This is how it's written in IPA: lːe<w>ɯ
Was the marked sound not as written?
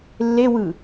no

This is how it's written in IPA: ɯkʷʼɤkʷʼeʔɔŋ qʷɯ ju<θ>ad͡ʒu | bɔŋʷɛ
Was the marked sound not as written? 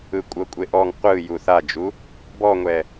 no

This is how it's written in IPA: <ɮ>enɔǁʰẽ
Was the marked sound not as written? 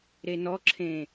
yes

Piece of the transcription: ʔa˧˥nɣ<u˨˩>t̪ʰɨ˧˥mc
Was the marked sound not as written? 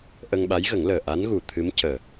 no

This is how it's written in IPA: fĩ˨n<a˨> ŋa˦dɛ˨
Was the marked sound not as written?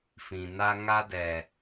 yes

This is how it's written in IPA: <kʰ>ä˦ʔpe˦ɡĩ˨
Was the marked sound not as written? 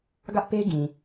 yes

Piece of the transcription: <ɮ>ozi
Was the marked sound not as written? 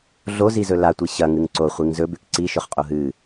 no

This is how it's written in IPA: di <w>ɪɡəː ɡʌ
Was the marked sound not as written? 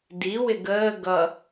no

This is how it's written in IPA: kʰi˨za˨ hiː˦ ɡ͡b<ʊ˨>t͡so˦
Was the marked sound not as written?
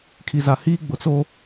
no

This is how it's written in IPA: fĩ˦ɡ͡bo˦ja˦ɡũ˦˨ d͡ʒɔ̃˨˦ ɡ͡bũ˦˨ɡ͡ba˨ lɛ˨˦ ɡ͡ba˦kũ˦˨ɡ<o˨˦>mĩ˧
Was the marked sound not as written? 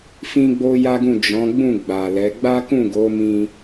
no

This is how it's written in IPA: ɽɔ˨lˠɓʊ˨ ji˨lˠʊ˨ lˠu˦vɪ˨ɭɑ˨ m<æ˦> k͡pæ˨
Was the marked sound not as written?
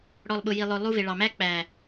no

